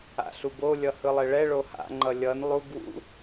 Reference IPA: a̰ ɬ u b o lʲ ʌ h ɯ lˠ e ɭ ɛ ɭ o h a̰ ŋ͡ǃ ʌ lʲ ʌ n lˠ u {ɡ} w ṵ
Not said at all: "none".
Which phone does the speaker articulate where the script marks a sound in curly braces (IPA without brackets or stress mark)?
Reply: ɡ